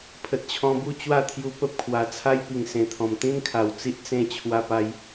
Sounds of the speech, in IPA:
pʰə˨t̚t͡ɕʰɔ̃˧bu˥˧ t͡ɕwa˥˧ t̪ʰju˧pə˦p̚kʰwa˨˩ t͡sʰa˦jpi˨˩ŋsẽ˨˩ t̪ʰɔ̃˨˩mt̪ĩ˦nkʰa˨˩w t͡si˦ʔ t͡sẽ˥˧ t͡ɕʰwa˧pa˧j

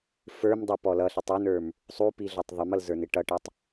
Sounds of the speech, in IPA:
fə˞m dˤʌpɔlʌ ɬitˤunə˞m | sˤupiɮɔtˤ ðˤɪmʌlzə˞nɪ ʈʌʈʌtˤ

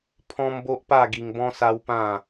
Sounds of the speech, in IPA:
pʰɔ̃˦mbo˦ʔpa˥˧ ɡi˧ŋbɔ̃˦sa˦wpã˥˧

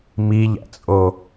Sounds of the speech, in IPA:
miʎæ̰t͡sʼo

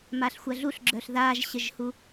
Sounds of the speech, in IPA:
maɬxʷɐɮuɬɡ͡ǁœɬ ðaʒɕəʒhu

